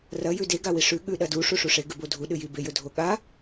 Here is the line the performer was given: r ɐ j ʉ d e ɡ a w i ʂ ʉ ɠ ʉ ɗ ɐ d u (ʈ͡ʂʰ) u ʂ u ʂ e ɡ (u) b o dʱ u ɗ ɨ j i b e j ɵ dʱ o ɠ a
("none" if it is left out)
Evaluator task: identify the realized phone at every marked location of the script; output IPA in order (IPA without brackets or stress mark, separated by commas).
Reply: ʂ, ʉ